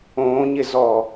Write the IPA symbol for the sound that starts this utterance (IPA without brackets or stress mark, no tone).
õː